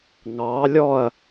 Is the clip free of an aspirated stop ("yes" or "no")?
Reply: yes